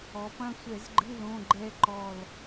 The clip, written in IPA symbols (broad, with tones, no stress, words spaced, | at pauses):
ɔ˩˧pɐ̃˦˨sʷɛ˧˩˧zɡ͡ǃɨ˧˥˧ lõ˧˥˧ɡ͡ǃɛ˦˥ ǃɔ˦˨l